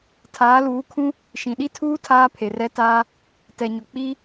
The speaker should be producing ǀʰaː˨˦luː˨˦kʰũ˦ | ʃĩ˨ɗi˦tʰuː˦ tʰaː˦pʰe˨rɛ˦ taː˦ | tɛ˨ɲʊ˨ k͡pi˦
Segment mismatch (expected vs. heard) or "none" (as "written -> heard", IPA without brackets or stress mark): ǀʰ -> tʰ